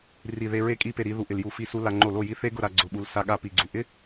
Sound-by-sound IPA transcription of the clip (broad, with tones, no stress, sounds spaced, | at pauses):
r i˧˩ ð e˧ ɹ e˥˩ kʼ i˥˩ p e˥˩ ɾ i˧ ð u˧˩ ʔ ɪ˧˩ l j u˧˩ f i˥˩ s u˦˥ l a˧ ŋ͡ǃ o˥˩ l o˥˩ j i˦˥ θ e˦˥ ɡ ʊ˥˩ ɾ a˥˩ ɡ͡ǀ ʊ˧ ɓ u˧ l s a˧ ɠ a˥˩ p i˧˩ ɡ͡ǀ u˧˩ ʔ ɪ˦˥